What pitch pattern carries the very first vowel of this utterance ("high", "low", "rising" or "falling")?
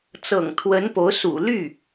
low